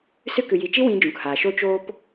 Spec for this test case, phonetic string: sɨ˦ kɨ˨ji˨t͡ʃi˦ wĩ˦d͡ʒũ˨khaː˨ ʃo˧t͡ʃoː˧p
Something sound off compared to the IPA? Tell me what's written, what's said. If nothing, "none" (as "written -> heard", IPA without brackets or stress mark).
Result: none